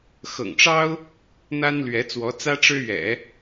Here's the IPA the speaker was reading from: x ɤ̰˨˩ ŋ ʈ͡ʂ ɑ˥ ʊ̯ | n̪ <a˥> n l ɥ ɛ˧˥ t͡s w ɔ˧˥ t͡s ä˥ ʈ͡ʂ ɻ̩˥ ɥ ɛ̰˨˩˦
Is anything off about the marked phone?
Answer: no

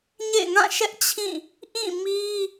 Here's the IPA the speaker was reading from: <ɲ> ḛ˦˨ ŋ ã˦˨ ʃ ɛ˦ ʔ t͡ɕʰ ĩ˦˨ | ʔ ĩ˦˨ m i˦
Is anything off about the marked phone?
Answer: no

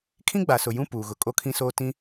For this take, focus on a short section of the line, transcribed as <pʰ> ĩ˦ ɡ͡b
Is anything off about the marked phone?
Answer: yes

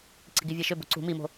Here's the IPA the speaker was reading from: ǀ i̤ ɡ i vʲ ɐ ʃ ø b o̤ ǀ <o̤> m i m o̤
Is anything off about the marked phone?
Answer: yes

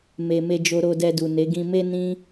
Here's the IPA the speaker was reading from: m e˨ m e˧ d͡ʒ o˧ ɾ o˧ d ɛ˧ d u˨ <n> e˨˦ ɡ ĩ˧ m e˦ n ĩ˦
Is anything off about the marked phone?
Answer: no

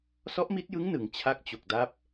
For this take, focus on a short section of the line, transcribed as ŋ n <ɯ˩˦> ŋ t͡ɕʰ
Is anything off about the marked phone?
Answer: no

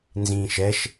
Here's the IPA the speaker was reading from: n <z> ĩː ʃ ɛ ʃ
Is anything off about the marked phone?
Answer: no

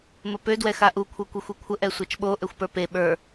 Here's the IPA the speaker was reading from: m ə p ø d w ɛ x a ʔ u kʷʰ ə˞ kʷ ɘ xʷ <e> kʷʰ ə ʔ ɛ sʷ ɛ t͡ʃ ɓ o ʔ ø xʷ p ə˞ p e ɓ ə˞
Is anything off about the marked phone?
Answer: no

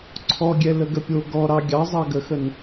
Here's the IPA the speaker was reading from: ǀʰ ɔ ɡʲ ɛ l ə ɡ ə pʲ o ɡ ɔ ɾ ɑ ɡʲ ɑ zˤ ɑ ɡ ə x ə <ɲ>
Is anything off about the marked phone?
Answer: yes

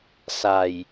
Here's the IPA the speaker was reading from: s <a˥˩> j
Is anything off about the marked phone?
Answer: yes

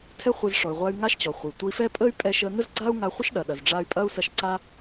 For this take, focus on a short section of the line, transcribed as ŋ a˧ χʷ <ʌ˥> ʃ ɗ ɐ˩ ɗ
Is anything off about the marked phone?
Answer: yes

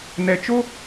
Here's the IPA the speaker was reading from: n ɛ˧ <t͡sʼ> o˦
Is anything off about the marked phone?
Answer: yes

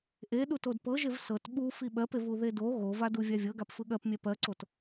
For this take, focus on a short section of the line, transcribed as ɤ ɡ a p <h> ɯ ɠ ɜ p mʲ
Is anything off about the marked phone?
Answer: yes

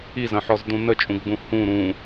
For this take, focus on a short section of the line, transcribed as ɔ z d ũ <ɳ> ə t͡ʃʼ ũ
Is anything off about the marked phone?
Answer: yes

